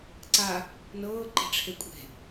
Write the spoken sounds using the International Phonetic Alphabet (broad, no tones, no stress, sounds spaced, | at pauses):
ǀ a | n ɤː ǃ e̤ ʈ͡ʂʰ e kʷʼ e̤